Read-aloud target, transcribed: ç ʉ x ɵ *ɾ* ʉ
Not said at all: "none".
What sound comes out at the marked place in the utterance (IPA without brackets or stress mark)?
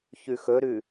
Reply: ɾ